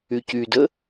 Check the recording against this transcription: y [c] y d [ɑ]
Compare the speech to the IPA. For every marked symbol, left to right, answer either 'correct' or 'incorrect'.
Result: correct, incorrect: ə

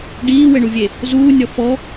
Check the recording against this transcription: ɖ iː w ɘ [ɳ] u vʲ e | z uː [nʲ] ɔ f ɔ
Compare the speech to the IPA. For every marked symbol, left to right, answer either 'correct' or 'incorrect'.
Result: correct, correct

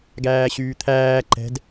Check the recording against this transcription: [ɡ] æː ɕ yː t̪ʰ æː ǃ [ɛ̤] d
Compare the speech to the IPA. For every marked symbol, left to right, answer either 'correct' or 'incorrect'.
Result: correct, correct

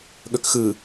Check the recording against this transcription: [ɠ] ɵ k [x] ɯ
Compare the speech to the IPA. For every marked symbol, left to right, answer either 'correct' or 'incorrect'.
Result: correct, correct

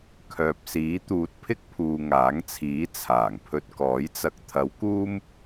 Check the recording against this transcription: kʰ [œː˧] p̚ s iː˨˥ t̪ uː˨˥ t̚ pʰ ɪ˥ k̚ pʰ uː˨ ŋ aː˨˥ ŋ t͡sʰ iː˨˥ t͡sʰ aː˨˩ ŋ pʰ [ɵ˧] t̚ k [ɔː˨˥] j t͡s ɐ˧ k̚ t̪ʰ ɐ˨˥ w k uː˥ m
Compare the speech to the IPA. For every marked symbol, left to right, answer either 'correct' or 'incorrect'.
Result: incorrect: œː˨, correct, correct

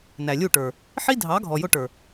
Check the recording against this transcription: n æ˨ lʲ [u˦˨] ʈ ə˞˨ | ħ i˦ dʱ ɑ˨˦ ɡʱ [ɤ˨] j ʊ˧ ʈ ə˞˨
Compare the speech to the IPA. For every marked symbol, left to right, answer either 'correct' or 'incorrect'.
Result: correct, incorrect: ɔ˨

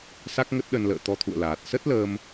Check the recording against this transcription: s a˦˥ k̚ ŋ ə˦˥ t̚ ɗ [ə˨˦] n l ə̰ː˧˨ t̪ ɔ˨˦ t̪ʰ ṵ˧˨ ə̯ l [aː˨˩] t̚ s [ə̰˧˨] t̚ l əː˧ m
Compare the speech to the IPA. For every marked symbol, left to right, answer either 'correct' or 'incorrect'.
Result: incorrect: ə˧, correct, incorrect: ə˦˥

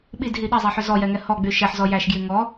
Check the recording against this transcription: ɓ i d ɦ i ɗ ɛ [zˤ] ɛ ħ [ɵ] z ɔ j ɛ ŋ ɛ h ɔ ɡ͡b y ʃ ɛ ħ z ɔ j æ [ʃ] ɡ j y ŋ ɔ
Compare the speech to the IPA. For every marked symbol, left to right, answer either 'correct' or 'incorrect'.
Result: correct, correct, correct

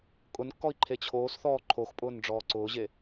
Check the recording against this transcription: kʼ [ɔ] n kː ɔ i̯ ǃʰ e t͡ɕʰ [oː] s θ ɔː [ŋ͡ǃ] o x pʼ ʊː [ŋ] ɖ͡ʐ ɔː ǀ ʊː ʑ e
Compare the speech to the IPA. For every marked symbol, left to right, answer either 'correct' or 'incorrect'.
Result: incorrect: ʊ, correct, incorrect: ǃʰ, incorrect: n

